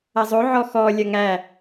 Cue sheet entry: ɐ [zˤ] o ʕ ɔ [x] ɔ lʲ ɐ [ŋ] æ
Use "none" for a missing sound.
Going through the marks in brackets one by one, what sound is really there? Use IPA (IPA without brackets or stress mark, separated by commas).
zˤ, x, ŋ